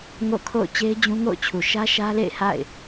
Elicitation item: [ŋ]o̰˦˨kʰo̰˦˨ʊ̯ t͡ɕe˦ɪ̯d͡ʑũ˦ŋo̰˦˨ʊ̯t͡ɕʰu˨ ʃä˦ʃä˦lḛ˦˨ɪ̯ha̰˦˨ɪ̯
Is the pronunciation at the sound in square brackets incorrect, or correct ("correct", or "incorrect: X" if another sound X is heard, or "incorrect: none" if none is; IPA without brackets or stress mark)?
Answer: correct